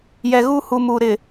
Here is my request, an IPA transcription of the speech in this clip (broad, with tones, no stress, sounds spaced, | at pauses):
j ɛ˨ ɣ u˦ h u˨ m u˨ ɾ ɪ˨